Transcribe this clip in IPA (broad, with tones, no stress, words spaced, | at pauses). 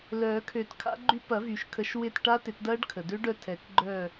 lœː˨˩˦kʰø˨˩˦tkʰa̰˦˥ɡ͡ǃy˦˥ pɐ˨˩˦vy˩ʃkʰə˨˩˦ʃ wɪ˦˨t ʈa˦˥tɪ˨˩˦tdɐː˦˥ɖkʰə˩ dø˦˥ɖœ˦˨ tʰɛ˨˩˦kɡ͡ǃœ˦˨